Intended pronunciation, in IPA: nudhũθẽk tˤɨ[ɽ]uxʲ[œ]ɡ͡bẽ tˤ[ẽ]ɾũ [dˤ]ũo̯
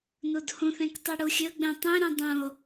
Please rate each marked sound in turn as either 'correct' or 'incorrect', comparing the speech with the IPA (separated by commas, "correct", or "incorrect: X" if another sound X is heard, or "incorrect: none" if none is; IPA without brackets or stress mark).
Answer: correct, incorrect: ɵ, correct, correct